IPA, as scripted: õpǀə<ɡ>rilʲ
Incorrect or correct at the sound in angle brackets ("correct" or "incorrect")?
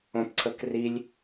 incorrect